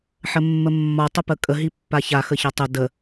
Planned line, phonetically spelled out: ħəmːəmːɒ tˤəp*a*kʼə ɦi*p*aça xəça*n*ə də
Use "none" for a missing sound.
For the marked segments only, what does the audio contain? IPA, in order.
ə, pː, tˤ

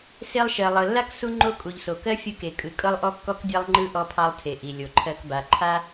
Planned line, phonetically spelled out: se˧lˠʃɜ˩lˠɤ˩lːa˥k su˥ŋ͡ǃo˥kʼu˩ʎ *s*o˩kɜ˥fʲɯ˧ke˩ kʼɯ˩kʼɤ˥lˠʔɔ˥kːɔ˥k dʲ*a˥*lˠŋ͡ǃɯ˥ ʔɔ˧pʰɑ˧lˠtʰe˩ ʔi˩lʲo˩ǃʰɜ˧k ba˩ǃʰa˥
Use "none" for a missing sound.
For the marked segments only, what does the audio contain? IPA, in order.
s, a˥

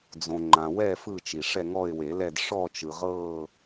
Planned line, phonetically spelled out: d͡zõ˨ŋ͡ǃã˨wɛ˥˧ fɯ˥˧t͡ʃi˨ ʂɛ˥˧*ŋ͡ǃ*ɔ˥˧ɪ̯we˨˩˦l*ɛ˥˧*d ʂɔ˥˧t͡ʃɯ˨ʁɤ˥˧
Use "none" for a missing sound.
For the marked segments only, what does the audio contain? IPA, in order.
ŋ, ɛ˥˧

